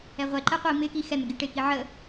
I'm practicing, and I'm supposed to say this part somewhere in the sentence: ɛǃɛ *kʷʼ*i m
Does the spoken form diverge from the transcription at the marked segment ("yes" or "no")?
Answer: yes